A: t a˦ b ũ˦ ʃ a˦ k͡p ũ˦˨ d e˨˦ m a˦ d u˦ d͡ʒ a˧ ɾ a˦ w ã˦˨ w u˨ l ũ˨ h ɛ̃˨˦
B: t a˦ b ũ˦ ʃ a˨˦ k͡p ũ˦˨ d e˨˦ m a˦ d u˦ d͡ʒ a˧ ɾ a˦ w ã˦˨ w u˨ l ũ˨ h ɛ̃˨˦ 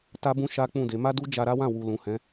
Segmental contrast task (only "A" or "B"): A